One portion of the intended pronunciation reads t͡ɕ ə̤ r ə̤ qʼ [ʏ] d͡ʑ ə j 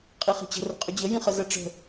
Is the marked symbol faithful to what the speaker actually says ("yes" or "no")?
yes